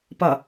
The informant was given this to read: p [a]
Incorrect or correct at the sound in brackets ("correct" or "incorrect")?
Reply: incorrect